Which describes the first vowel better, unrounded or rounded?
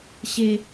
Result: unrounded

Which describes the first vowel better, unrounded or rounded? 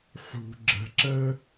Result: rounded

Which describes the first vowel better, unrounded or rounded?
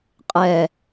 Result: unrounded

